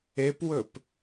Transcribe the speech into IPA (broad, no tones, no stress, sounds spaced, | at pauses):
e p w ɵ p